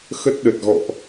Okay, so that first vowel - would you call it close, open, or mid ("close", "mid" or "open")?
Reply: mid